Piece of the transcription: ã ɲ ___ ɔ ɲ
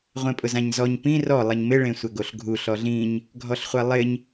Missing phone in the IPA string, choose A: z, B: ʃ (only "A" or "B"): A